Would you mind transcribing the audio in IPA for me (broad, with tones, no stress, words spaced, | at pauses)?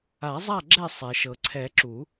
a˨˩˦zˤa˥˨ ɡ͡ǁɛ˥˨ sˤɛ˩ʃɤ˩ǀʰɛ˨˩˦ ǁu˨˩˦